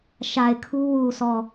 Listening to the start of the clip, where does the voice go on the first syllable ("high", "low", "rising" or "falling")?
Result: low